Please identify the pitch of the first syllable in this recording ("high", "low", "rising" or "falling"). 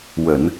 low